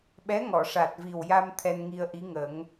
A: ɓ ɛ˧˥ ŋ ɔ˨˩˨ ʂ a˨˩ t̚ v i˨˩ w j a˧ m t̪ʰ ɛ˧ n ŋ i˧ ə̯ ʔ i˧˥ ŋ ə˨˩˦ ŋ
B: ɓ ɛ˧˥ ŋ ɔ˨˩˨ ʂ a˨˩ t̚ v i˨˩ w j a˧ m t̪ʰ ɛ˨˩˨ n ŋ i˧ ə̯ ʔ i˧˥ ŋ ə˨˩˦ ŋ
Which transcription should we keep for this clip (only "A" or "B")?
A